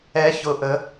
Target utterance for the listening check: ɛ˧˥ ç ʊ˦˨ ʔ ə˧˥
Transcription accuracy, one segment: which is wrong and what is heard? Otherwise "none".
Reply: none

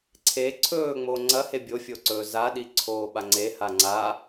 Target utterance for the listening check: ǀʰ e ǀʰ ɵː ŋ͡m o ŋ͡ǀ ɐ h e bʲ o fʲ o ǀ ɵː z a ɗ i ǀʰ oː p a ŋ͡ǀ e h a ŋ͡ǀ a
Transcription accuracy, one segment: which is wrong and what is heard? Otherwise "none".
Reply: p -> ɓ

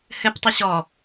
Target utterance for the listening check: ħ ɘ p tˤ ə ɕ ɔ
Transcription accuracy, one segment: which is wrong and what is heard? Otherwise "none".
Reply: ħ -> h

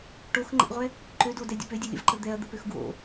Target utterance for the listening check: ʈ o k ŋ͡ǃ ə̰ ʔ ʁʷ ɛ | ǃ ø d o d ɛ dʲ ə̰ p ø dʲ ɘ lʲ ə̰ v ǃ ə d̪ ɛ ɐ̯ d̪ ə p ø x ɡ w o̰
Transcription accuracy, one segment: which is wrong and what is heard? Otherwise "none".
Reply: k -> x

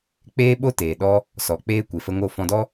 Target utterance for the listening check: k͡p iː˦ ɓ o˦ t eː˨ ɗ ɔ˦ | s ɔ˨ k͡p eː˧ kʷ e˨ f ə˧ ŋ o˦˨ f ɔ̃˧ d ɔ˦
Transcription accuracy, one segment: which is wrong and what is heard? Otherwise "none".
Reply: iː˦ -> eː˦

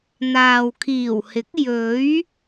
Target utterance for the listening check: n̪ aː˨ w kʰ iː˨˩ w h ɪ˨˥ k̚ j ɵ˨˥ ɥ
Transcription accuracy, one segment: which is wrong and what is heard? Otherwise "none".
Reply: none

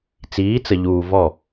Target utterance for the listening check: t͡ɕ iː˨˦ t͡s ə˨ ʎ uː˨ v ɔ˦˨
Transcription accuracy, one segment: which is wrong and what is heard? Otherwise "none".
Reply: t͡ɕ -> t͡s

